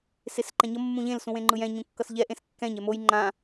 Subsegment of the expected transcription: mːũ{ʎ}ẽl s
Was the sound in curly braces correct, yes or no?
yes